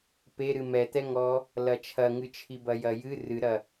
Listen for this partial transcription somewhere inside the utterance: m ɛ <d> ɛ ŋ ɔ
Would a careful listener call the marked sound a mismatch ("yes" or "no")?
yes